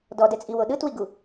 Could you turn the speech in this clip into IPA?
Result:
d ɔ d ɛ t͡sʼ i w o ɗ ɯ t w i ɡ u

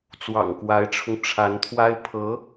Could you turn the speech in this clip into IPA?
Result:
t͡s w ɑ̰˨˩ ŋ k w a˧˥ ɪ̯ ʈ͡ʂʰ ʊ˧ ŋ ʈ͡ʂʰ a˧˥ n t̪ʰ w a˥ ɪ̯ pʰ ɤ˧˥

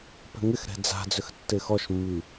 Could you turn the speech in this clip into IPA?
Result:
p ɛ̤ ŋ ɪ x ɾ ɛ̤ d͡z a̤ d͡z ʏ x tː ɪ x ɔ ʃ mː i

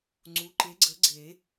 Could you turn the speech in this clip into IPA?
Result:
ŋ͡ǀ u˩˥ ǃ e˩˥ ɡ͡ǀ ə˩˥ ɡ͡ǀ e˨˩˦

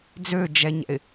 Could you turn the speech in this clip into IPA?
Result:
d͡z ø d͡ʒ ɛ ɲ ɛ̰ ɪ̯

